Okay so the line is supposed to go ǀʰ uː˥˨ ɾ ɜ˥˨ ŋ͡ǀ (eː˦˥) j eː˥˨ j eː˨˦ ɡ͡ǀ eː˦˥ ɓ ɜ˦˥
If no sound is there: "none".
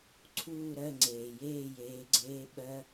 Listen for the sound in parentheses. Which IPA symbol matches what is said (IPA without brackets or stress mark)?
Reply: eː˩